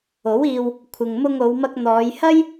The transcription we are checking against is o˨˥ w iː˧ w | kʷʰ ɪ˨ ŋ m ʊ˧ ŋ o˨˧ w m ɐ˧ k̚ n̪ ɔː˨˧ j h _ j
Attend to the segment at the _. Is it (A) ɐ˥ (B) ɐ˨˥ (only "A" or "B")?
A